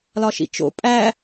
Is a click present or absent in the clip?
absent